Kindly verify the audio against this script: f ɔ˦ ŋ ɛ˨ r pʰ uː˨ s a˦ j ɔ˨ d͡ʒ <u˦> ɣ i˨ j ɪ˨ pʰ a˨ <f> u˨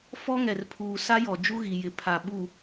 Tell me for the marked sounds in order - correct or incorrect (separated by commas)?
correct, incorrect